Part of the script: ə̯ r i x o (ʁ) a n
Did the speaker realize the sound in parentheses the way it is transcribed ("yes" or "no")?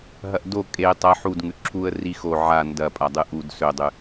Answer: no